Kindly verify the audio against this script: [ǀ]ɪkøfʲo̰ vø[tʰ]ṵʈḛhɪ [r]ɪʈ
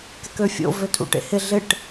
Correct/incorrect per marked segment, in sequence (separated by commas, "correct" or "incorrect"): incorrect, correct, incorrect